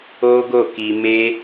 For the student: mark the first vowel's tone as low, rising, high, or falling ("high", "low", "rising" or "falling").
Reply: high